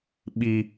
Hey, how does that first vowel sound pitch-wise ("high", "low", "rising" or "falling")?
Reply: low